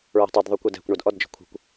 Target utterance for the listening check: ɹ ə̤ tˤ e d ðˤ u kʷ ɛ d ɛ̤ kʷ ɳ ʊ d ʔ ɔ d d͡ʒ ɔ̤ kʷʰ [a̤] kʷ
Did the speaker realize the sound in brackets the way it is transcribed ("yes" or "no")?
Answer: no